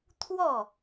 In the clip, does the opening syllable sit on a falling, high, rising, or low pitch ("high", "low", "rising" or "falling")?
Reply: falling